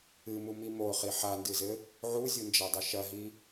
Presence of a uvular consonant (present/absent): present